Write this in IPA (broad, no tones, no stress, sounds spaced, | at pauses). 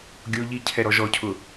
ɡʲ o ʎ i cʰ ɛ ɾ ɔ ʒ ɔ cʰ ʊ